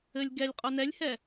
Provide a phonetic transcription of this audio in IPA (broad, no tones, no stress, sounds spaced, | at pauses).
ɘ lʲ ɡ ɛ lʲ qʼ o n ɛ lʲ h ɛ